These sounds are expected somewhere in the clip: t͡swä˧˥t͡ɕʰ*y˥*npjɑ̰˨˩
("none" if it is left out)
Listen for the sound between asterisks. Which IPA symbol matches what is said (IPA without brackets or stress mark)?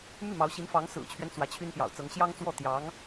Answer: y˥